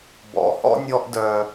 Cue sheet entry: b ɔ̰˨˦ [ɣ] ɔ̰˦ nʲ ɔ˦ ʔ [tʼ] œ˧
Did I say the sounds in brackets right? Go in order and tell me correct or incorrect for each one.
incorrect, incorrect

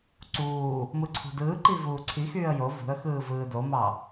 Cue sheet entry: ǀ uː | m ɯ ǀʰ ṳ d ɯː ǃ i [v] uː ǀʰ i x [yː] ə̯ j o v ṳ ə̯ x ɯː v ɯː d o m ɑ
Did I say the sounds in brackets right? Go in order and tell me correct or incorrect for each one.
correct, correct

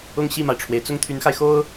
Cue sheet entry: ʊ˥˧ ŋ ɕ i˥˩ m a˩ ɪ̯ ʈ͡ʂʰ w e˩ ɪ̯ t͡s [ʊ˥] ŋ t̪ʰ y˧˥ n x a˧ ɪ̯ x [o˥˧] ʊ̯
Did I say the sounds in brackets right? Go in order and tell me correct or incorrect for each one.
incorrect, incorrect

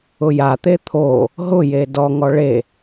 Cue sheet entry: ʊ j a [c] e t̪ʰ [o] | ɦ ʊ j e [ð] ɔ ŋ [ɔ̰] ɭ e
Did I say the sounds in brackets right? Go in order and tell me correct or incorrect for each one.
incorrect, correct, incorrect, incorrect

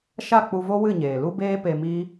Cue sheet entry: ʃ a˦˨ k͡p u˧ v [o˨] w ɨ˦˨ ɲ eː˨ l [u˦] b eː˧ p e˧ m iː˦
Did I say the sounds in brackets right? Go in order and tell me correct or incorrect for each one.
incorrect, incorrect

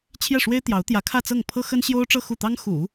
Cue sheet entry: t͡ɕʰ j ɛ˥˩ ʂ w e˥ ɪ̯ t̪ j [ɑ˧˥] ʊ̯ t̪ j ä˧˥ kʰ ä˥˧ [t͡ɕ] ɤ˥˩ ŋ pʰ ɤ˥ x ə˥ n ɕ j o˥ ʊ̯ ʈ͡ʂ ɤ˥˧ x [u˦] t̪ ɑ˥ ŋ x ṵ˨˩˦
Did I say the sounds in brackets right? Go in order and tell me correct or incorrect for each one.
correct, incorrect, incorrect

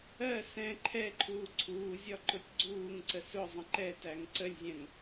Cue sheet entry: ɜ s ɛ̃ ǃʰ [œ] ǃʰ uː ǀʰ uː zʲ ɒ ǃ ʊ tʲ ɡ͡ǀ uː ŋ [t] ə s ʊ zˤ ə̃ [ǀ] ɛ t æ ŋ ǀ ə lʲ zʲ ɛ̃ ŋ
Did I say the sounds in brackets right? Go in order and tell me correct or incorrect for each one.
incorrect, incorrect, incorrect

